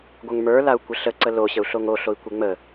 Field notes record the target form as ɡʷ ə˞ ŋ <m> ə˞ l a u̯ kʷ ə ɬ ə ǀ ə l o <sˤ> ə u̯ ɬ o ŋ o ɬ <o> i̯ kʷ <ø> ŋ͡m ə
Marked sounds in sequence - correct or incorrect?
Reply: correct, incorrect: ɕ, correct, incorrect: e

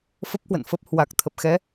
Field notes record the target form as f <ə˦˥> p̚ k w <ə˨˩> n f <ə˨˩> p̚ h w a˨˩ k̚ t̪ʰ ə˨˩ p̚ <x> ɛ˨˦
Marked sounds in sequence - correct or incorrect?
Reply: correct, incorrect: ə̰˧˨, incorrect: ə˦˥, correct

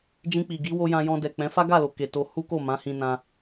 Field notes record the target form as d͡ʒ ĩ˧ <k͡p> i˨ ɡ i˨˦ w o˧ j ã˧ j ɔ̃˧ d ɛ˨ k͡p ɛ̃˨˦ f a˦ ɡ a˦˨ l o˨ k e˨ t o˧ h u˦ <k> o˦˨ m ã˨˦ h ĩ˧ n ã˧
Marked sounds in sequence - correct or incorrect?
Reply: correct, correct

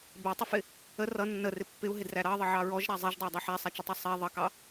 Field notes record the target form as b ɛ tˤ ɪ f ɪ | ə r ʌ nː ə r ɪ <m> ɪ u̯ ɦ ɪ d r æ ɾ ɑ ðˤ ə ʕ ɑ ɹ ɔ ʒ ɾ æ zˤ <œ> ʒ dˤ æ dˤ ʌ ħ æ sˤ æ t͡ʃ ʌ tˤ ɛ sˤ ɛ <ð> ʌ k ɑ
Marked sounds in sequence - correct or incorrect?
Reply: incorrect: pː, incorrect: ɛ, incorrect: ðˤ

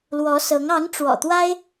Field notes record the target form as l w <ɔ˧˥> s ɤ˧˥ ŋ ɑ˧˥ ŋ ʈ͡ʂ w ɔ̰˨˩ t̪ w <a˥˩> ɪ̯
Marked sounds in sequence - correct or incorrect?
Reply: correct, incorrect: a˥

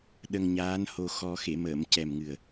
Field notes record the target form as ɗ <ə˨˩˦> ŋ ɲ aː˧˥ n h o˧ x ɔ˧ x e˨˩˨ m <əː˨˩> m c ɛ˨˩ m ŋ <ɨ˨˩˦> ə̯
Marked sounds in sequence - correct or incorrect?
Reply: incorrect: ə˧, incorrect: əː˨˩˨, incorrect: ɨ˨˩

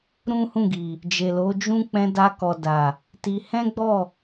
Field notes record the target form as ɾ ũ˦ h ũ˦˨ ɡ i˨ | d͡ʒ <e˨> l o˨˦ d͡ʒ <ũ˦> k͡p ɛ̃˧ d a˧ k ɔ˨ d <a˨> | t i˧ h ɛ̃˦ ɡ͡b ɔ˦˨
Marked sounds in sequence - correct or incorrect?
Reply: correct, correct, correct

